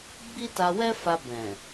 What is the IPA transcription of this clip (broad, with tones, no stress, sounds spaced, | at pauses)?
ɡ͡b i˦ t a˧ w ɛ˦ f a˧ b ɛ̃˨